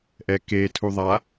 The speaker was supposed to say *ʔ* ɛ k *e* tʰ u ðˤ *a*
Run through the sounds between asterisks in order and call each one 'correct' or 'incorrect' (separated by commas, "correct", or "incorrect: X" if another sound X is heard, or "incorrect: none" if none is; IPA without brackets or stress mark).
correct, correct, correct